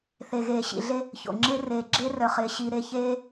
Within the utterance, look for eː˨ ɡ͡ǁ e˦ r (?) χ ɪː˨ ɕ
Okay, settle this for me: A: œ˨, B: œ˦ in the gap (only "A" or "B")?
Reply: A